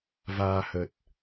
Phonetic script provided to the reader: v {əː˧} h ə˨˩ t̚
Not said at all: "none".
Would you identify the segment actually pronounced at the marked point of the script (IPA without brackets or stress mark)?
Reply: aː˧